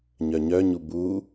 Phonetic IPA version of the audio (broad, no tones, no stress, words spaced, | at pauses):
ɲœɲœɲu bu